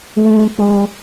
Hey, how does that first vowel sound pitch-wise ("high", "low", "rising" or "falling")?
high